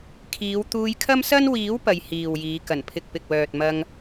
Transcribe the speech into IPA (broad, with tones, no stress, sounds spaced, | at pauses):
kʰ iː˨˧ w t̪ uː˧ j kʰ ɐ˥ m s ɐ˥ n w iː˨˥ w p ɐ˧ j h iː˨ w j iː˨˧ k ɐ˨˩ n pʰ ɪ˨ k̚ p ɪ˨ k̚ w œː˨ t̚ m ɐ˧ ŋ